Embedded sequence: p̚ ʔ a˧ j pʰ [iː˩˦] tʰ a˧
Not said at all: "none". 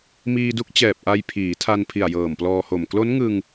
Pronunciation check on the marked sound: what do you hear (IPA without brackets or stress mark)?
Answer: iː˩˦